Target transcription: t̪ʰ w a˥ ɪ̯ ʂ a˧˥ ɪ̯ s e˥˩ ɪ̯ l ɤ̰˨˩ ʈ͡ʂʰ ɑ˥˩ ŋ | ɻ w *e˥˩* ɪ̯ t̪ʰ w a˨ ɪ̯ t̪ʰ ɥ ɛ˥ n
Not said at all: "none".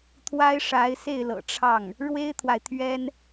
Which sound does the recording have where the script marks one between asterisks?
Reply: e˥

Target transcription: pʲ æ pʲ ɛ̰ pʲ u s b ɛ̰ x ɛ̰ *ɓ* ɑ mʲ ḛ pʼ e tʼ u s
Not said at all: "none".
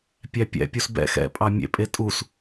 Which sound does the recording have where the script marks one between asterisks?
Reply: pʼ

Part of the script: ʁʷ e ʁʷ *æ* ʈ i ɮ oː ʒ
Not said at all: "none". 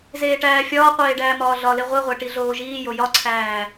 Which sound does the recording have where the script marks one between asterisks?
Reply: æ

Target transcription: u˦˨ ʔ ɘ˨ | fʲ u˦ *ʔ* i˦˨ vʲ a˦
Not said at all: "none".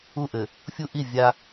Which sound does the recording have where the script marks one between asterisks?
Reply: ʔ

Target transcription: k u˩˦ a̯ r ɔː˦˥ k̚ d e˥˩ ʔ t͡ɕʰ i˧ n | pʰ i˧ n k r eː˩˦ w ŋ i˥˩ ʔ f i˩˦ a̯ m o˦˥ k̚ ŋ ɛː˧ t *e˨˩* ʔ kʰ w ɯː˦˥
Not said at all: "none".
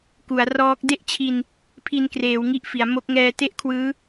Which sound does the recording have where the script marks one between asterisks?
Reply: e˥˩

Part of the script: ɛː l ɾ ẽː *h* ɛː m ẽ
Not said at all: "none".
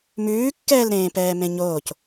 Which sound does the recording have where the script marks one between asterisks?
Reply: p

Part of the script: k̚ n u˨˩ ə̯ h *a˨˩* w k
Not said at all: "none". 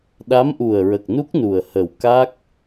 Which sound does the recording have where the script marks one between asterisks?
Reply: ə˨˩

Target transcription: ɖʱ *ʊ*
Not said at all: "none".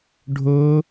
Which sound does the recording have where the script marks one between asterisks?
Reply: ʊ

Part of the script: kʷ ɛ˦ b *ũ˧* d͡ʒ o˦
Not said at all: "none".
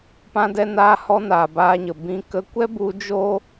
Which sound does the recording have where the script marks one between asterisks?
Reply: u˧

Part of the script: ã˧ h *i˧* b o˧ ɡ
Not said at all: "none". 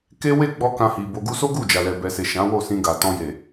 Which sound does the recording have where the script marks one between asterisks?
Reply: i˨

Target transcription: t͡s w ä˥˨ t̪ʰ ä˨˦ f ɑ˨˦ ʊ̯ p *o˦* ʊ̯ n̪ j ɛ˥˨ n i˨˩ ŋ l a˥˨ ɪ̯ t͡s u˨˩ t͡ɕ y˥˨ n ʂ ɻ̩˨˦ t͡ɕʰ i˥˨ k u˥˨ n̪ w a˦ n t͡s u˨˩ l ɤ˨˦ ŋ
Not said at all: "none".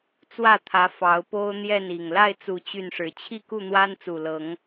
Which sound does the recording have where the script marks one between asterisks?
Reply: o˦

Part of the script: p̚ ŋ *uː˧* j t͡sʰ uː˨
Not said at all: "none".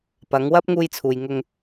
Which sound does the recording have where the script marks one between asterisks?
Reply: uː˧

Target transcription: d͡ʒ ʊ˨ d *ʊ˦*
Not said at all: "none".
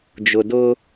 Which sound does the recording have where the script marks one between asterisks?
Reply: ʊ˦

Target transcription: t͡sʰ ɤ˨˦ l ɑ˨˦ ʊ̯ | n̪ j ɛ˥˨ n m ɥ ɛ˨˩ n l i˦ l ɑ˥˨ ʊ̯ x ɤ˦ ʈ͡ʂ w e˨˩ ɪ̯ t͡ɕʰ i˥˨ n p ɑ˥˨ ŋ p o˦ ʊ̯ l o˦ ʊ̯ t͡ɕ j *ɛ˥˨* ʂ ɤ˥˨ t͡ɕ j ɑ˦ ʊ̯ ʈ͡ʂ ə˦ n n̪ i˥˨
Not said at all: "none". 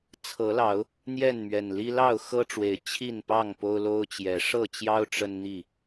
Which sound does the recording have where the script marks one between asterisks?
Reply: ɛ˨˦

